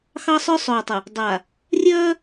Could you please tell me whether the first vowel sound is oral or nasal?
oral